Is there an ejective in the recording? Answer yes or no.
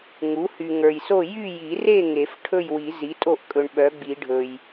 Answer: yes